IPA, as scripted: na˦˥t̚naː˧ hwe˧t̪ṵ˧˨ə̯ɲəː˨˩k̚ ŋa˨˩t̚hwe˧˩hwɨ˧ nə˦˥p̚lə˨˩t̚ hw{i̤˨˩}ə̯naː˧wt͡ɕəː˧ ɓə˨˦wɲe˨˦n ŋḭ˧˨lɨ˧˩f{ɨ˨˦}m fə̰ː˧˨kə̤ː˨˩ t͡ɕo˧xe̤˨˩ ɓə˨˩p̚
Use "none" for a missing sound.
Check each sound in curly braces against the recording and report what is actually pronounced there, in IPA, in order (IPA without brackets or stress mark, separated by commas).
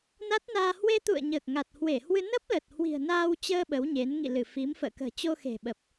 i̤˨˩, i˨˦